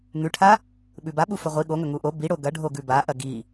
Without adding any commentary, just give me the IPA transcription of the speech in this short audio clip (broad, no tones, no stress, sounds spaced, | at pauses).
ŋ ʉ ʈʰ a | ɓ ʉ b a ɓ u f ɵ ʁʷ i ɠ o ŋ ɵ ŋ u ʔ o b i ɽ o ɡ ɐ ɖʱ o ɡ ʉ b a ʔ ɐ ɡ i